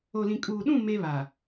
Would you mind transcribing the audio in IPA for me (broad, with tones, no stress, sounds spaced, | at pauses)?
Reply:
o˨ l ĩ˨ kʼ uː˨ ɗ ũ˦˨ m e˦ β a˨